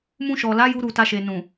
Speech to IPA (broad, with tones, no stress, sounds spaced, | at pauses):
m ũ˧ ʃ ɔ˨ l a˨˦ j u˦ ɾ u˦˨ t a˧ ʃ e˨ n ũ˨